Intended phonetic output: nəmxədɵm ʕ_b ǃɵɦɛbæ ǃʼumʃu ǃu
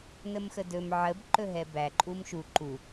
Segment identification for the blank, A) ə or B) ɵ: A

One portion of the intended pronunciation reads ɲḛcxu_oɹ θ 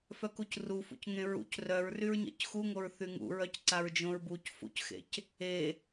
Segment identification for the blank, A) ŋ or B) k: A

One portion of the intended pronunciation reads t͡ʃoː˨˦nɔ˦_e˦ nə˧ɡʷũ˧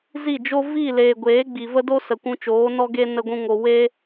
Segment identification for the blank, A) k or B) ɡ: B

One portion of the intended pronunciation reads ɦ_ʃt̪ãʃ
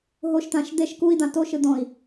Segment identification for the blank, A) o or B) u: A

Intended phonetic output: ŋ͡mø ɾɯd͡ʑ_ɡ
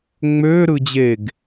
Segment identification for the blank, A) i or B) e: B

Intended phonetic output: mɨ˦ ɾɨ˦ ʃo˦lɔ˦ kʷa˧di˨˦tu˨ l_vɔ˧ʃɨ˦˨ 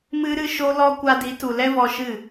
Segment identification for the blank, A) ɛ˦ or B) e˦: A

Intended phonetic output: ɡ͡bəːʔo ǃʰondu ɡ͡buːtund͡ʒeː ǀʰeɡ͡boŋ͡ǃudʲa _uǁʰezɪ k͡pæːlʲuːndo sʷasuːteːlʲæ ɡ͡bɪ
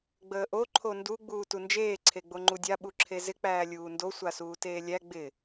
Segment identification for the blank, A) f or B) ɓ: B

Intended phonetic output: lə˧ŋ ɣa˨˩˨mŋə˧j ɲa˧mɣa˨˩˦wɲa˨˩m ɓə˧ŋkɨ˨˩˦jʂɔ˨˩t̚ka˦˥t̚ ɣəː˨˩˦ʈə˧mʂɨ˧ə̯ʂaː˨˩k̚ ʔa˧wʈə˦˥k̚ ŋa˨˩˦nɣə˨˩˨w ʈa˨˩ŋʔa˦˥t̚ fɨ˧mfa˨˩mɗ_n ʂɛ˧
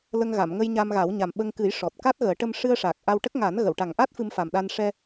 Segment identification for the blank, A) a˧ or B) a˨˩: A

